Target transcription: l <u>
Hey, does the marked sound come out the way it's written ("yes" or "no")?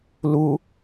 yes